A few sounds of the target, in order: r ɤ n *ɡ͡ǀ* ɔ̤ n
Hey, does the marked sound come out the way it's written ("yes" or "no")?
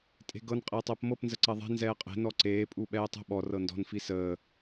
no